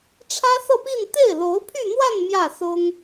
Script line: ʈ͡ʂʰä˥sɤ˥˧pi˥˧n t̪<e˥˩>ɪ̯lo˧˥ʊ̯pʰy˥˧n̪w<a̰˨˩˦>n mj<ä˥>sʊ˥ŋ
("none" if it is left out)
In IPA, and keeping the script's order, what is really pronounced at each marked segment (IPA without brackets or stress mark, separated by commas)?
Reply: e˥˩, a˥˧, ä˥˩